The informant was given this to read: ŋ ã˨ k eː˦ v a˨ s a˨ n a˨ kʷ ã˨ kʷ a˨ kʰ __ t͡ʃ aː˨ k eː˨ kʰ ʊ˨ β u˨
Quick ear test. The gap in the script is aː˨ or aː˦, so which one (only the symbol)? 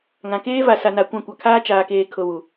aː˦